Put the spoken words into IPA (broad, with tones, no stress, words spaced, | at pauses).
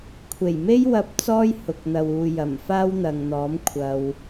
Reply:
kʷʰe˨˩jme˥jwɐ˧p̚ t͡sɔː˥jhʊ˨k̚n̪ɐ˨wuː˨ jɐ˨˩mfaː˥wn̪ɐ˨ŋn̪ɔː˨˥m kʷʰɐ˧w